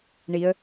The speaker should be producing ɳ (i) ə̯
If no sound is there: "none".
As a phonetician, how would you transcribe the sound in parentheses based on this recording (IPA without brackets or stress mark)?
i